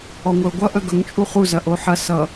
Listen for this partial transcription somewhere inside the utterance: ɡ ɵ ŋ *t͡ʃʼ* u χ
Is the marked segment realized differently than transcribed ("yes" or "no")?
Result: no